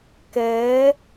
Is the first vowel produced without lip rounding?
yes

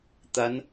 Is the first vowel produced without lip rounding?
yes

